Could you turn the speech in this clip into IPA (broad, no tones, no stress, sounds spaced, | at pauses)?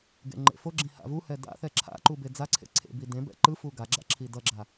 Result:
ɡ ḛ ŋ͡ǃ ḛ f o ɡ͡ǁ ĩ h a̰ v u h ɛ d a̰ θ ɛ ǁʰ a̰ ǃ u b e d͡z a ǀʰ ḛ ǀʰ ḛ b i d ẽ b ɛ̰ ǃ ɯ f u ɡ a ɡ͡ǁ a̰ ǁʰ i d ʌ ɡ͡ǁ a